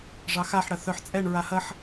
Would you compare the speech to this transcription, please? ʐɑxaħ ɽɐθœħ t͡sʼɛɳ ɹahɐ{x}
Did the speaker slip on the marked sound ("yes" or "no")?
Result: yes